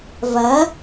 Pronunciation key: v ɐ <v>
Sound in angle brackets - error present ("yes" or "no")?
yes